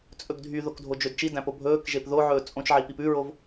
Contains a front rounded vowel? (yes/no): yes